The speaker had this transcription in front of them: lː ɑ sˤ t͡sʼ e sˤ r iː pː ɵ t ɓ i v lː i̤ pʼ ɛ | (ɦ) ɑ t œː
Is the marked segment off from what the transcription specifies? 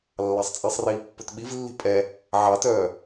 yes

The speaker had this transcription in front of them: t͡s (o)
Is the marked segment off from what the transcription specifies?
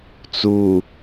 yes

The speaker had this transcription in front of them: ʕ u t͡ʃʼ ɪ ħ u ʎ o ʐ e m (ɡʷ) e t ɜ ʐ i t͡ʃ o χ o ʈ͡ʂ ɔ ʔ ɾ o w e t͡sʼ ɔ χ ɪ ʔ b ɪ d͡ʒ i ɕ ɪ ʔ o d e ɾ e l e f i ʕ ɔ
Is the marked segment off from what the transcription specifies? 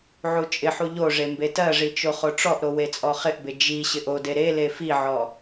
yes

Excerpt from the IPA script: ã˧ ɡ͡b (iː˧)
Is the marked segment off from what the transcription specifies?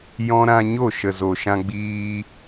no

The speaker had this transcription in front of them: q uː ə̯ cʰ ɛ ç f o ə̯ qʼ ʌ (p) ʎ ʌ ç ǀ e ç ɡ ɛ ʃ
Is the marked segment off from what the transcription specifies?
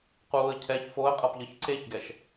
no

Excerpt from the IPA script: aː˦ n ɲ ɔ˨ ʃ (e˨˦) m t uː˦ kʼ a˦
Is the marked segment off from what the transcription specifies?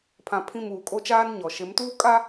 no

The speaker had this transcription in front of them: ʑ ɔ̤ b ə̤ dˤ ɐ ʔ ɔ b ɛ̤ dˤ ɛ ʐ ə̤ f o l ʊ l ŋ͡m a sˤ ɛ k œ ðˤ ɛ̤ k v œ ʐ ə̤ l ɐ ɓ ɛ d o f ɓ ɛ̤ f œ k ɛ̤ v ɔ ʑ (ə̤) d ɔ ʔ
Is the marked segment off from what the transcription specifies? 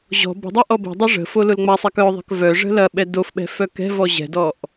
yes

